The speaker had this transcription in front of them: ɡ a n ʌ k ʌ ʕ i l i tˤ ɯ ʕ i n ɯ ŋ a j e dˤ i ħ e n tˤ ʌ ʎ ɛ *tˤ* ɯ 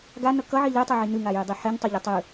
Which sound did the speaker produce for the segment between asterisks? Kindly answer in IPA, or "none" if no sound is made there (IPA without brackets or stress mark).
tˤ